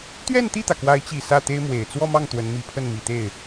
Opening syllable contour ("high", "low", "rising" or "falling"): falling